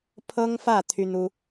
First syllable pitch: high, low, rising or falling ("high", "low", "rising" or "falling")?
high